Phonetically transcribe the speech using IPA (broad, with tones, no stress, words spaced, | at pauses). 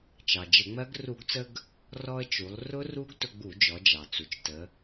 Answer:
t͡ʃɑ˩d͡ʒə˧˩˧ŋ͡mɜ˦˥ɡ ru˧˩˧ɡt͡sə˧ɡ | rɔ˧ə̯t͡ʃu˩˧lˠ rʊ˦˥ru˦˥ɡ tʊ˧ɡ͡bu˧˩˧d͡ʒɔ˩˧ d͡ʒɑ˩t͡su˩t͡ʃtə˩˧